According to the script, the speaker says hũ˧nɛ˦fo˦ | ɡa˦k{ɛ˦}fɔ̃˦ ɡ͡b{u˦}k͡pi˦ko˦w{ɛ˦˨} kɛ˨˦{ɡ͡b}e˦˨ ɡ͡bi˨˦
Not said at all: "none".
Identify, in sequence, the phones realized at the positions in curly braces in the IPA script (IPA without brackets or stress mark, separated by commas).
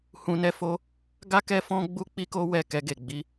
ɛ˦, u˦, ɛ˦˨, ɡ